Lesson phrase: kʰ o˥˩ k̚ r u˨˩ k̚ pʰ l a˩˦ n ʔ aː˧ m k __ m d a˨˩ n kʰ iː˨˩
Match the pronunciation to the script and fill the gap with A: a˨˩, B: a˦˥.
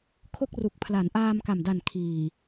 A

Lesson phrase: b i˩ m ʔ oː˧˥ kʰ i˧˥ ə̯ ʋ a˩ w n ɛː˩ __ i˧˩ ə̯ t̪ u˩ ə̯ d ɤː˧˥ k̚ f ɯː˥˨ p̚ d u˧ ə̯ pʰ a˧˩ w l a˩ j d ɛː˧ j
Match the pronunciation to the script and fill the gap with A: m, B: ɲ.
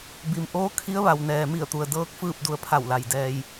A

